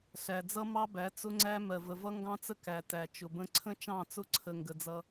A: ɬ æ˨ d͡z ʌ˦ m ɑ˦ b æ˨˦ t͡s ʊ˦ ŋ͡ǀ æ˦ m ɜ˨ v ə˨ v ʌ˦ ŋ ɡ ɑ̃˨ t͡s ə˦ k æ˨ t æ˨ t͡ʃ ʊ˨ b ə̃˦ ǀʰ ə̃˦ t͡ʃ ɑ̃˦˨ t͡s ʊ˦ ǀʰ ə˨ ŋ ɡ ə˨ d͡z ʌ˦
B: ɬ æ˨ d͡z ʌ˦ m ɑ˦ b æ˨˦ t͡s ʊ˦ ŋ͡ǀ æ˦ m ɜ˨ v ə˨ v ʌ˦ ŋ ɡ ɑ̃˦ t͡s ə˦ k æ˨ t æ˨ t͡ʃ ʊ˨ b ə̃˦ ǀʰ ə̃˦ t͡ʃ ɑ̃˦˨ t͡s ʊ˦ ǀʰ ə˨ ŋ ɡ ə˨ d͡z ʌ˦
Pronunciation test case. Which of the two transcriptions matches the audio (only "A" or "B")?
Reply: B